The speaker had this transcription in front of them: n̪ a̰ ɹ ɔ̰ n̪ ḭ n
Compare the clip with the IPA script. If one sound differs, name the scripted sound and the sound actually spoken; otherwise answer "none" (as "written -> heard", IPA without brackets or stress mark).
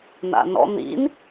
ɹ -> n